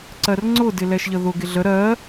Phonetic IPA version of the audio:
ǀ ɜ r ŋ͡ǀ ʊ d ɪ l ɛ ʃ ʎ ə ð ʊ ɡ ɪ ɮ ə ɾ ɜ

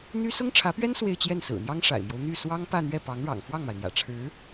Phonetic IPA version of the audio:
n̪ y˥ s ʊ˥ ŋ ʈ͡ʂʰ ä˧˥ p ɥ ɛ˥ n s w e˥˧ ɪ̯ t͡ɕ j ɛ˥˩ n s ɹ̩˨˩ n̪ j ɑ˥ ŋ ʂ a̰˨˩ ɪ̯ m j o˦ ʊ̯ n̪ y˥˩ s w ɑ˥ ŋ p ä˥˧ n̪ ɥ ɛ˥˩ p ɑ˧˥ ŋ ɻ ɑ̰˨˩ ŋ f w ɑ˥˩ ŋ m a˩ ɪ̯ n̪ j ä̰˨˩ ʈ͡ʂʰ ɻ̩˧˥

